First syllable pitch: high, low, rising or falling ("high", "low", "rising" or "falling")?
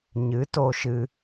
rising